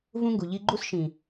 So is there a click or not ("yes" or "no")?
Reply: yes